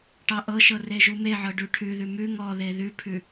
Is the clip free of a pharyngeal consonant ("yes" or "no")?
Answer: no